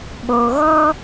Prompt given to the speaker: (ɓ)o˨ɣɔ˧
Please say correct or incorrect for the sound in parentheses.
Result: correct